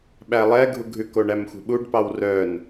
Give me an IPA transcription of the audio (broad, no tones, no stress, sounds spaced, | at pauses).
ɓ æ lˠ ɛ ɡʱ u ɡʱ ʉ k o ɳ æ m xʷ ɛ̤ ɓ u ɖ p ɑ w r œ n